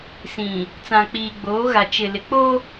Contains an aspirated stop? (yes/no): no